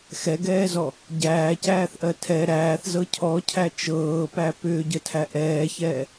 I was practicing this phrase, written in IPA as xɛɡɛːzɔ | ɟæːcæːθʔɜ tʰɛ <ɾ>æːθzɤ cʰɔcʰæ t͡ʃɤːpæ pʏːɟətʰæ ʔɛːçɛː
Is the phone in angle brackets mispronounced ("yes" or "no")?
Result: no